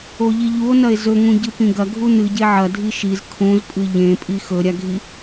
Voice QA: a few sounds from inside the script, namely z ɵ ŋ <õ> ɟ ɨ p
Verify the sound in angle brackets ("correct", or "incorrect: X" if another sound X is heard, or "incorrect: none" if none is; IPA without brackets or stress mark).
incorrect: ũ